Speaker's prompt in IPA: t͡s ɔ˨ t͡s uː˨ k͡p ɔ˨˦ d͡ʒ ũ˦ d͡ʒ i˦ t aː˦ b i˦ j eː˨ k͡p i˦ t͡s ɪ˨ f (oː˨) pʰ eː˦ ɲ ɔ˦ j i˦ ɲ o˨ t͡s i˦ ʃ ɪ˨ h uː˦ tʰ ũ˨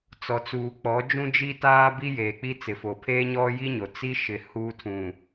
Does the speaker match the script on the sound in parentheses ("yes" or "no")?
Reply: no